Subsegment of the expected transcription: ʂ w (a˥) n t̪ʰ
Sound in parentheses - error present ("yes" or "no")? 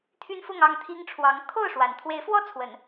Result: yes